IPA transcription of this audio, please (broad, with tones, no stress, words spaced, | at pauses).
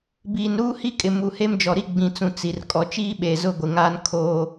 biː˨nɾuː˦hi˦kʼɪ˨ mu˨he˦md͡ʒɔ˨ɾi˦ ɡ͡bĩ˨t͡sũ˨ t͡si˨r kʼɔ˨t͡ʃiː˦ɓeː˨ zʊ˦ɡʷɪ˨ŋaː˦n kʰo˦